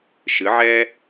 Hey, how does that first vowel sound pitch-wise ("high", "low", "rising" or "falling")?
rising